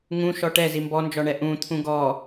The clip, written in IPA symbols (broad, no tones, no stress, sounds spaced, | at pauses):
ŋ ũ ʃ ɔ ʈ ɛ z i m b ɔ n d͡ʒ ɔ ɳ ɛ ʔ ũ t̪ʰ ũ ɡ ɔ